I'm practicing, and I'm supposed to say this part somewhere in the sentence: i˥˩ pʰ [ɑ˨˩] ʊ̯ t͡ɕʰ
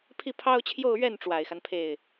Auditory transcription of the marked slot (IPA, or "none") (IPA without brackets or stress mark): ɑ˥